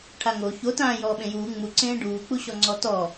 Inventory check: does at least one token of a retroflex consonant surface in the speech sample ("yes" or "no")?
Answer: yes